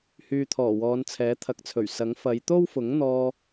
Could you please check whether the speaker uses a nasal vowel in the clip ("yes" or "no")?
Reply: no